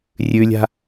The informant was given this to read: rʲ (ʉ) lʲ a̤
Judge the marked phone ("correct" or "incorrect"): correct